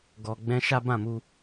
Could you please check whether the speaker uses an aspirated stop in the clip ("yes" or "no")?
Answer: no